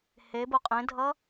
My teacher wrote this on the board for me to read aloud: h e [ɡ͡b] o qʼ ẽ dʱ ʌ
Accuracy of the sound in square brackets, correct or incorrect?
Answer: incorrect